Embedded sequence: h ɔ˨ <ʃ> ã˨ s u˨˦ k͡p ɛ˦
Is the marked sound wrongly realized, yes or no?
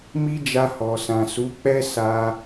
yes